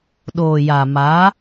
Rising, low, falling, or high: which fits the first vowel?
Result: low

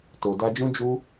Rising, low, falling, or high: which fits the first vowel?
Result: low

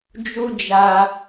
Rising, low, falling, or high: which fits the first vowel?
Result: high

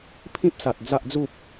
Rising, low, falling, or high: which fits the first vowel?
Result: high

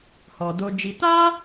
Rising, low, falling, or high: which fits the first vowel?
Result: low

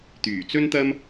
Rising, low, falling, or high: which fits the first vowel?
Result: low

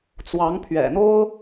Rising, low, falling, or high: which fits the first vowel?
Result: rising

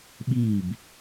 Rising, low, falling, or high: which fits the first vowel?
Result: falling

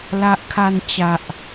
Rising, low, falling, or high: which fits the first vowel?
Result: high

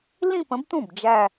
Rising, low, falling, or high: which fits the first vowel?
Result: falling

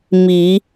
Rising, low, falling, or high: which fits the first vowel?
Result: rising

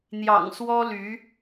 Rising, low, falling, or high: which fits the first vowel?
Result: low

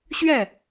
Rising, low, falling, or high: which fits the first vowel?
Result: falling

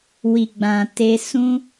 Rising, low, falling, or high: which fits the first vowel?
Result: low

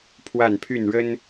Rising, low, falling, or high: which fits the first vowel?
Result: falling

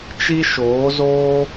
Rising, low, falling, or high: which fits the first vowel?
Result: high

